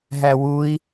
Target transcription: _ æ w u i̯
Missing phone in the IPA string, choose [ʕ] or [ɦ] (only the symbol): ɦ